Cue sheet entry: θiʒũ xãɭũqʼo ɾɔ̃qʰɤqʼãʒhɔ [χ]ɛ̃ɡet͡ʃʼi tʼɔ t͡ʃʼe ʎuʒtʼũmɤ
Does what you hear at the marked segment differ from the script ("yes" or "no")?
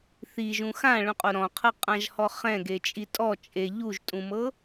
no